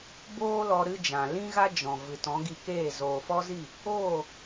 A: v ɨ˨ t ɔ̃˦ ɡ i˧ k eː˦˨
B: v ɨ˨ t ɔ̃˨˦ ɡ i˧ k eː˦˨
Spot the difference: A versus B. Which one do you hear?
B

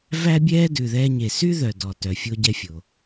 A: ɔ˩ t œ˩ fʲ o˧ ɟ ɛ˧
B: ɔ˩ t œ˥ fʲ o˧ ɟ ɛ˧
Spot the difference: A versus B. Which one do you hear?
A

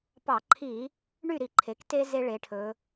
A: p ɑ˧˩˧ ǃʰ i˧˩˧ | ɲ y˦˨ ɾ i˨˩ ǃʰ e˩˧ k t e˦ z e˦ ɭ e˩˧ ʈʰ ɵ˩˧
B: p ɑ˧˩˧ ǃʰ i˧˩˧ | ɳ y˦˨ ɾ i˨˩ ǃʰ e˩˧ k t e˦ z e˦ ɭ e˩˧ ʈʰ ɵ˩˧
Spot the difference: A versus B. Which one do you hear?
B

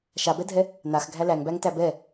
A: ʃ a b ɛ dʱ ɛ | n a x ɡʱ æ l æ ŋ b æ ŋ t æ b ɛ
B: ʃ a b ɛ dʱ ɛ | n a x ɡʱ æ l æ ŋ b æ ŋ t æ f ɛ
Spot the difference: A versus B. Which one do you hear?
A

